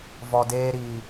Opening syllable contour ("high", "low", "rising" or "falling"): low